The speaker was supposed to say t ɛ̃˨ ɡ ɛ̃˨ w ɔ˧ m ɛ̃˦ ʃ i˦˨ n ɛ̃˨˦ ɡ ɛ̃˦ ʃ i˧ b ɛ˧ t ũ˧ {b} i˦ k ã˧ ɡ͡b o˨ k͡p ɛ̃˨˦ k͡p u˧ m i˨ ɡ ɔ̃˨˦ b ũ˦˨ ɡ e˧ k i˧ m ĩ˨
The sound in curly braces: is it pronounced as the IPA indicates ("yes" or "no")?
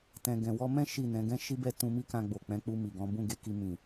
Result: no